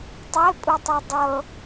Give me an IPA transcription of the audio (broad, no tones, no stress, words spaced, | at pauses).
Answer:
tˤepʼutˤi dˤɤ